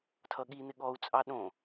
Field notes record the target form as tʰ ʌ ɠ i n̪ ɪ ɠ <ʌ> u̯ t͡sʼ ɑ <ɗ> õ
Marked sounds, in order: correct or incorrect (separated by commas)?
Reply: incorrect, correct